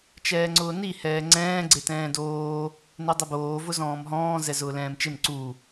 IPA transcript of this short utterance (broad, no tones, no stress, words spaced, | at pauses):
t͡ʃɛːŋ͡ǀʊːni hɛːŋ͡ǀɛ̃ː ɡ͡ǀetɛ̃ːdoː | nedˤʊboː vʊzɔ̃ːmɦɔ̃ː zɛzʊːlɛ̃ːmt͡ʃɪm ǀu